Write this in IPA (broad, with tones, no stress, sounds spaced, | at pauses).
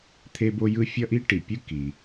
t̪ʰ e˦ b o˦ j ɯ˦ fʲ ʌ˦ ʔ i˦ ʈ i˩ pʲ ɯ˦ k i˩